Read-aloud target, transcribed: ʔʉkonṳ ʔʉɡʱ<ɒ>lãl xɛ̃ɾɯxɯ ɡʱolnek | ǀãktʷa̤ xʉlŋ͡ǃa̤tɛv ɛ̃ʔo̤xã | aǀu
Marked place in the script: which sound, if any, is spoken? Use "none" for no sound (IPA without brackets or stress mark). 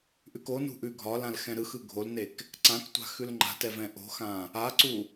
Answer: ɒ